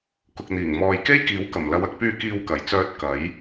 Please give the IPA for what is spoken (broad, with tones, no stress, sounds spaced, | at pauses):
k ʊ˨ k̚ n̪ iː˨˩ ŋ m ɔː˨ j k e˥ j k iː˨˥ w k ɐ˨˩ m l ɐ˨˧ w ɐ˧ k̚ p yː˧ k iː˧ w k ɐ˨˩ j t͡s œː˧ t̚ k ɐ˨˥ j